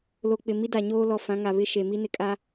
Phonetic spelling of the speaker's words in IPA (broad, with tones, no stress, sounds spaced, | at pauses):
l o˨ k͡p ɪ˨ m i˦ d a˨ ɲ oː˦ l ɔ˨ f ã˨˦ ŋ a˨ β ɪ˦ ʃ e˨ m i˦ n ɪ˨ kʼ a˦